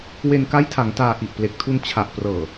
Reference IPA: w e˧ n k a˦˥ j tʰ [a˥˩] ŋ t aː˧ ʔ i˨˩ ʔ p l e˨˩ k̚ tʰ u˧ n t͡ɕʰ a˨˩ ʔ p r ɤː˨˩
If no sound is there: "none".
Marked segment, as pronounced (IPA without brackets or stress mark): a˩˦